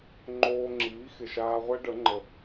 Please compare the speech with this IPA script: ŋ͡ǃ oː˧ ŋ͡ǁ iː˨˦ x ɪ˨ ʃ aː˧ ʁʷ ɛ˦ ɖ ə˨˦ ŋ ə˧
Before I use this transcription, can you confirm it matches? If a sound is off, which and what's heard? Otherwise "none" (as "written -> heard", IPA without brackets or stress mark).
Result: ŋ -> ŋ͡ǃ